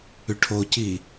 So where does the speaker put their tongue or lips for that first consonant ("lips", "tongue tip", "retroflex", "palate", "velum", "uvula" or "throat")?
retroflex